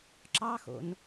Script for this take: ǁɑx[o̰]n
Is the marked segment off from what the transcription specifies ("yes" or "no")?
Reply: no